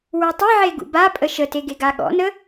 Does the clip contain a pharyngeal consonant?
yes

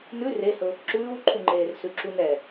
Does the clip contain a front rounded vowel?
no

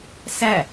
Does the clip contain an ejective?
no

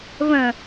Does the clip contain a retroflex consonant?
no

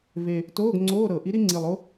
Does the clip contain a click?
yes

